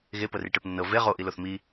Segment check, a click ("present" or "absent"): absent